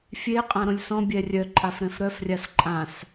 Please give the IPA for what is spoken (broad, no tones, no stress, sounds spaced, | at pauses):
fʲ e qʼ ã ɾ õ lʲ s ɔ̃ bʲ ɛ rʲ œ ǃʼ a f ɾ ɛ̃ f ɾ œ f rʲ a s ǃʼ ã s